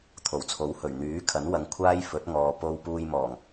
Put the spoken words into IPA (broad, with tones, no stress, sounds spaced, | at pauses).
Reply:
t̪ʰ o˨˩ w t͡sʰ o˨˥ w h ɵ˨˩ ɥ n̪ yː˨˥ kʰ ɐ˨˥ n w ɐ˨˧ ŋ kʷʰ aː˥ j f ɵ˨˥ t̚ ŋ ɔː˨ p o˧ w p uː˧ j m ɔː˨˩ ŋ